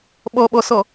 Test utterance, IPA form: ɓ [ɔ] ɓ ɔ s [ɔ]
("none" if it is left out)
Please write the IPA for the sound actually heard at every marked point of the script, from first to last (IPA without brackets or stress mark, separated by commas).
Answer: ɔ, ɔ